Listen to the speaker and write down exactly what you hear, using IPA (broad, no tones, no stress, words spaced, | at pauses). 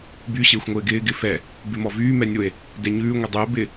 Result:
by ɕɪːxʷŋʷɪːɡɪː ɡɪfɛ | bɪmɔvyː mɛnʲʊe̯ | dɛɲʉː ŋʷədˤyo̯ bɪ